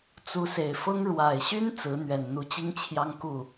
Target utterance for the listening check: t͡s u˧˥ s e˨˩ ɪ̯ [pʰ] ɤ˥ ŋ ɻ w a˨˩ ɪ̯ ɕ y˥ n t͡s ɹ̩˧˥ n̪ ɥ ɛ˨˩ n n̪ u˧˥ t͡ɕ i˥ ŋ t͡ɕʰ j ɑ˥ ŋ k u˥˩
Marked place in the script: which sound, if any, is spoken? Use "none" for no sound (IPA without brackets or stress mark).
f